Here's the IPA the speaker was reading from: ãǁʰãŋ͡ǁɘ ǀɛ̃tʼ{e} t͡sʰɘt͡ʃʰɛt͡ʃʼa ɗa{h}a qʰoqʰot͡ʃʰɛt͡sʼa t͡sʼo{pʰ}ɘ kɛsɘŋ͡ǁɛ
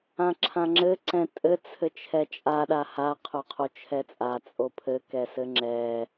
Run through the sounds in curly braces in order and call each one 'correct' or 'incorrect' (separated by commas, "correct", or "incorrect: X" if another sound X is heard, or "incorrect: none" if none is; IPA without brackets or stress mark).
incorrect: ɘ, correct, correct